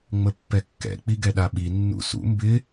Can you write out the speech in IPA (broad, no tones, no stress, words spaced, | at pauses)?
ŋ͡məpːɛkːɛ̰ k͡piɡɛɗaɓi nːṵsṵ mbɪ